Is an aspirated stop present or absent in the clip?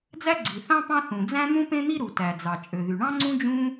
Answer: absent